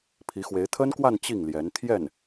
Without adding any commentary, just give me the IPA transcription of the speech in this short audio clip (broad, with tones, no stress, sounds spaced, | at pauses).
pʰ i˧˥ x w e˧˥ ɪ̯ t̪ʰ ə˥ n k w a˥˧ n t͡ɕ i˥˩ ŋ l j ɛ˧˥ n t̪ʰ j ɛ˥˩ n